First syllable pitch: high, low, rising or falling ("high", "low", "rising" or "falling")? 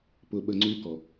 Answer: low